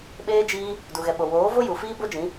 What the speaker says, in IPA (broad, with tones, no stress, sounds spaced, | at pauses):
ɓ eː˦ d͡ʒ iː˦ | d u˨ ɣ ɛ˨ ɓ o˨ w oː˨˦ v o˦ j u˨ f iː˦ b o˦ d͡ʒ ĩ˨˦